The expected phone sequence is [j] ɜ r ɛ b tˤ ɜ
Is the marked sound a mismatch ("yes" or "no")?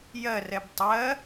no